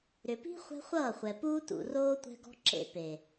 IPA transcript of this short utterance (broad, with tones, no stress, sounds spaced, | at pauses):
ɾ ʏ˨ p i̤˦ χʷ ɛ̤˦ χʷ ʌː˦˨ χʷ ɛ˨ p uː˦ t ṵ˨ r oː˦ tʷ ɛ̤˦ ɡ ɔ̤˦ ǁ ḛ˦ p e˨